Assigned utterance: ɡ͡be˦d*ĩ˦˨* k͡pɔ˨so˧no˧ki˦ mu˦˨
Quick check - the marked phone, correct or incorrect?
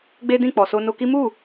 correct